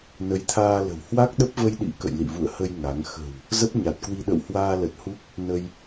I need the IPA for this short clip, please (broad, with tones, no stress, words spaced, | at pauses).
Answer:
nə˨˦jt̪ʰaː˧lə̤˨˩w hwa˦˥k̚ɗə˦˥p̚və˧jɗḭ˧˥ kə̰˧˨jlḭ˧˨vṵ˧˨ə̯hə˧j ŋa˨˦ŋ xə̤˨˩w | zə˦˥p̚ɲa˨˩t̚kwi˧ ɗə̰˧˨whwaː˧lə˨˩t̚hu˦˥k̚ | nə˧j